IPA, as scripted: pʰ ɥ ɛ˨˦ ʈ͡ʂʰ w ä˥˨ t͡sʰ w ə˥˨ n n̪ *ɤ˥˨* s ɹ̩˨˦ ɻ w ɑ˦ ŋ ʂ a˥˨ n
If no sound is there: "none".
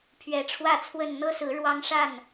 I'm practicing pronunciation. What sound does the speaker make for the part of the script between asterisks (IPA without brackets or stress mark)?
ɤ˦